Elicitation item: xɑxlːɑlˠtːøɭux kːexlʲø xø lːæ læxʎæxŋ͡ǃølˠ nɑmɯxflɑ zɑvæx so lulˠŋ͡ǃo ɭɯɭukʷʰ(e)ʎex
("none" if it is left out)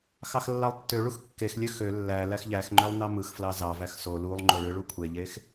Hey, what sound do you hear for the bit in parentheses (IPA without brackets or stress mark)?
e